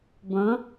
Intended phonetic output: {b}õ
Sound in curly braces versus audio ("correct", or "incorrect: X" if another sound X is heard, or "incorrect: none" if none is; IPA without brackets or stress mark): correct